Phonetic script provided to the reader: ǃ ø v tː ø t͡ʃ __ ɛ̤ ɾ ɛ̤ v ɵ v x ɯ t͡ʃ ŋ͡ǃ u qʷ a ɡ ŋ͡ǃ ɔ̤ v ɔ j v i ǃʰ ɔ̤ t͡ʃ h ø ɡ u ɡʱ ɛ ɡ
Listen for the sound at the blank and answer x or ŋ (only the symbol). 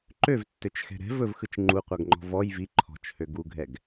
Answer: x